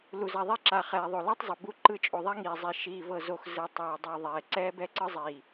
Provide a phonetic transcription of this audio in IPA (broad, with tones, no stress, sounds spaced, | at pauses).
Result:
l u˨ z a˨ ðˤ e˦ ǁ a˨ χ ɛː˨ ðˤ o˨ l e˦ tˤ zˤ ɯ˨ b u˦ ǃ ɯ˦ t͡ʃʼ o˨ ðˤ a˦ ŋ iː˨ zˤ i˨ ʃ iː˨ v ɤ˨ z o˨ x z ɯ˨ tˤ ɛː˨ dˤ u˨ ðˤ ɛː˨ ǀ ɛː˦ b ɛ˦ ǀ ɯ˦ zˤ iː˨